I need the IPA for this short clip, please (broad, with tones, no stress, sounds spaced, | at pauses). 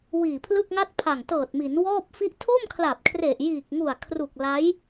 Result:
w iː˨˩ pʰ l ɯ˥˩ k̚ ŋ a˥˩ t̚ pʰ a˨˩ ŋ t ɤː˨˩ t̚ m i˩˦ n w ɔː˥˩ p̚ f i˥˩ ʔ tʰ o˥˩ m kʰ l a˨˩ p̚ kʰ r e˨˩ ʔ j iː˨˩ k̚ ŋ u˨˩ a̯ kʰ r u˨˩ k̚ l a˦˥ j